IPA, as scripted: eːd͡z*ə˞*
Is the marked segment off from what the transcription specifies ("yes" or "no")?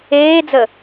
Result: yes